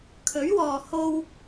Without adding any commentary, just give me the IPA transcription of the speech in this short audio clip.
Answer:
kʰɵ˨˥ɥwɔː˨ ho˧w

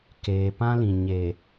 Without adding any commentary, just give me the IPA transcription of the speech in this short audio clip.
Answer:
keː˨pã˦lĩ˨ ɲe˨

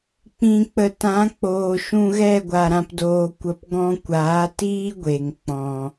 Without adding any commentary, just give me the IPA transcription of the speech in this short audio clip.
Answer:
k͡pĩ˨k͡pə˨tã˨˦k͡poː˨ ʃũ˧ɣɛ˦˨ɡʷa˨ ɾã˧pdoː˧kʷə˧p ɡɔ̃˧kʷaː˨˦tiː˦ ɡʷe˨ŋk͡pɔ̃˨

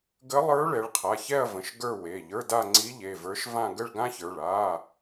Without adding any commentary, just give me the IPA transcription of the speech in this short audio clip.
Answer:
ɡə˧˥lˠə˞˧˥ ɭɛ˩˧ɭqʰa˩˧˩çɛ˥˧ɐ̯və̃˩˧˩ʃ ɡə˞˥˧we˩˧˩ ʎə˞˧˥˧da˥˧ ŋ͡ǀi˧˥ʎe˩˧˩və˞˧˥ʃvã˥˧ ɡə˥˧ɭɡã˥çə˞˩˧˩ɭ a˧˥˧

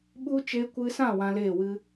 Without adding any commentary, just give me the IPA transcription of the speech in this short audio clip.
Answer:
ɓu˦ t͡ʃe˧kʷɨ˧sã˦˨ wã˧leː˦˨wɨ˦

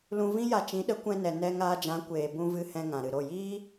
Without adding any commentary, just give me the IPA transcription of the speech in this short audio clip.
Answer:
lũ˧vĩ˦ja˧ t͡ʃĩ˨˦ɗə˨˦kʷɛ̃˧nɛ˨ nɛ˧ŋaː˧d͡ʒã˨˦kʷeː˨ bũ˧vɨ˧ hɛ̃˧ŋã˨ɾɨ˨ɾo˦˨ jiː˦

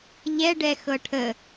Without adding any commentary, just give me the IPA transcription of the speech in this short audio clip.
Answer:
ʎɛɖɛ xɤʈʰə

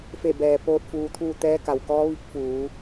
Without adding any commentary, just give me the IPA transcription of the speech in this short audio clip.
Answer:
fe˧˩bɛː˩ poː˧t̚ fuː˧t̪ʰuː˥˨ t̪ɛː˧˥ka˩wkɔː˧˥ ʋi˧˥k̚fuː˩˧

